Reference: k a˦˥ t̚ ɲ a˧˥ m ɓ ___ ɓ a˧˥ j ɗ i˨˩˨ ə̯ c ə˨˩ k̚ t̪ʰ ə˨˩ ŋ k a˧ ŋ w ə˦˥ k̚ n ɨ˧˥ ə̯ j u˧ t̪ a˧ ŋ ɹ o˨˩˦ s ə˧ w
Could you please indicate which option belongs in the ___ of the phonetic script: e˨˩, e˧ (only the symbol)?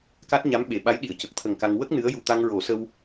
e˨˩